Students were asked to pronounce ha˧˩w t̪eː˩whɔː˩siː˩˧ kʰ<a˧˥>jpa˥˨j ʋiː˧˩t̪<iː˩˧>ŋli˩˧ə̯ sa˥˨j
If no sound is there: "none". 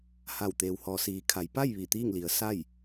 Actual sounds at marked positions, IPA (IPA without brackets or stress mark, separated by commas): a˩˧, iː˥˨